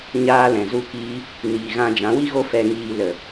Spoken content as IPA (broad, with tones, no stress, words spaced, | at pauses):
ɲaː˧ lɛ̃˨zu˦kiː˦ | niː˨ɣã˧ d͡ʒã˨˦wi˦ɣo˦ fɛ˧ ŋiː˧ lə˨